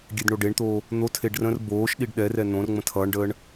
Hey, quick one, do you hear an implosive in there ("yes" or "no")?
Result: yes